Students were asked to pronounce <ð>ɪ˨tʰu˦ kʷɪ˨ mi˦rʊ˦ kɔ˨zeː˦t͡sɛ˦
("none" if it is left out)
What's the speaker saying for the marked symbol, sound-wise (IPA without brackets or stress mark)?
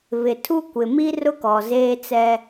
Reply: β